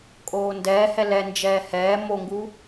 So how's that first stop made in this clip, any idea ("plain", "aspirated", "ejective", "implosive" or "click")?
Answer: ejective